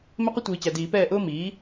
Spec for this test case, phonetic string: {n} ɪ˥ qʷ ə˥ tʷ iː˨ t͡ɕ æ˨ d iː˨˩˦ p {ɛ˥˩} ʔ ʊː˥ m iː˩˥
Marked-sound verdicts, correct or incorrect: incorrect, incorrect

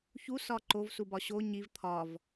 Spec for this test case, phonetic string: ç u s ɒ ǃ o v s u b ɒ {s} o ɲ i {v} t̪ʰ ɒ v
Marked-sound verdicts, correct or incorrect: incorrect, correct

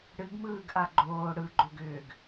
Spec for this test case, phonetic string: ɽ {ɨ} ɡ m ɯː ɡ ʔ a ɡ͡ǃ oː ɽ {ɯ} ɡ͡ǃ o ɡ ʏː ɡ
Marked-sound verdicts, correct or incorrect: correct, correct

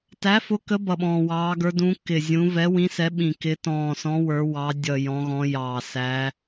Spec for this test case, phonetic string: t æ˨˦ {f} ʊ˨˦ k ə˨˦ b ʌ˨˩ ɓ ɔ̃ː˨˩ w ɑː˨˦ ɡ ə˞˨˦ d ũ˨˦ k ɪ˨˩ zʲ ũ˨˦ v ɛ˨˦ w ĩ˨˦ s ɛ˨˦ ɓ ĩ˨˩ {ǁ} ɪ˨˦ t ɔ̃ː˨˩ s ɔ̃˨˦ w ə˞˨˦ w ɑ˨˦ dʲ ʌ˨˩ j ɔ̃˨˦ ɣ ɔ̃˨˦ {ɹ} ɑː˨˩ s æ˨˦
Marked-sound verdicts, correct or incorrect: correct, incorrect, incorrect

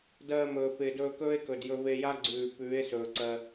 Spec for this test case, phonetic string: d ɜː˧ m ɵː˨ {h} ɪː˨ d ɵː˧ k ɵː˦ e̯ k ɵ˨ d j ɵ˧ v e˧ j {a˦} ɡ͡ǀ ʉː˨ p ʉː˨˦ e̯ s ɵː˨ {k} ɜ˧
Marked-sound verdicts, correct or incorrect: incorrect, correct, incorrect

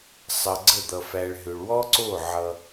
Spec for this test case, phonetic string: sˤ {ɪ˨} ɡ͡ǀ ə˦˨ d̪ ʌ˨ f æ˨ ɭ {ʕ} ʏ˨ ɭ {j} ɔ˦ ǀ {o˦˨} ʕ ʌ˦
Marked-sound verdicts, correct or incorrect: incorrect, incorrect, incorrect, correct

